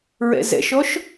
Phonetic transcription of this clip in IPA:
ɹ ɛ̰ z ɛ̰ ʃ ɔ ʃ

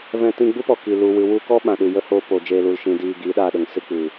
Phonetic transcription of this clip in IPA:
v ɛ̃˧ t ĩ˧ ɡ͡b u˦ p ɔ˨ k i˨ l u˨ w ɨ˨ w u˧ k ɔ˦ ɓ ã˨ ɗ ɨ˨ j ə˦ h oː˧ p o˨ d͡ʒ eː˧ l u˧ l ʃ ĩ˧ d iː˨ ɡ iː˨˦ ɗ aː˧ ɗ ə˨ ŋ s ɨ˧ k͡p ɨ˨

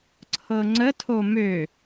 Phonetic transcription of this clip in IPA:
ǀʰ ɤ ŋ͡ǀ ə tʰ o m ø

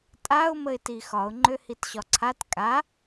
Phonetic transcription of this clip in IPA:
tʼ a ʊ̯ m ə ɪ̯ t i x ɒ ʊ̯ ŋ͡ǃ ø h i t ɕ ɒ ǀʰ a t kʼ a

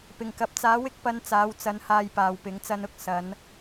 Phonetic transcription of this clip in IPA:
p ɪ˨˩ ŋ k ɐ˨ p̚ t͡s aː˨˥ w ɪ˥ k̚ p ɐ˧ n t͡s aː˨˧ w t͡s ɐ˧ n h aː˧ j p aː˨ w p ɪ˨˥ ŋ t͡s ɐ˧ n ʊ˧ k̚ s ɐ˨˧ n

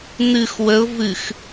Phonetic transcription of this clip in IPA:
n̪ ɨ x w ə ʊ̯ v ɨ x

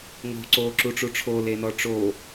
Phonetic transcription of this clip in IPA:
ŋ o̤ ǀ oː ǁ u ʈ͡ʂ u ʈ͡ʂʰ o l e n ɔ ʈ͡ʂ o

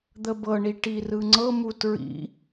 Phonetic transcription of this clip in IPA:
d̪ ə b ɤ ɳ i ʈ i r ɯ ŋ͡ǀ ɤ m u t ɹ ḭ

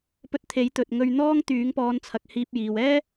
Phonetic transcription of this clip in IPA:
p ɵ˧ t̚ t̪ʰ e˨˥ j t̪ ɵ˧ t̚ ŋ ɵ˥ ɥ n̪ ɔː˥ ŋ t̪ yː˨˥ ŋ p ɔː˨˧ n t͡sʰ ɐ˨ k̚ h iː˧ p̚ j iː˨ w ɛː˥

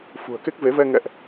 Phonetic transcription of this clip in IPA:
f ṳ˨˩ ə̯ k e˦˥ k̚ v e˨˦ v ɛ˧ ŋ ɛ̰˧˨ ʔ

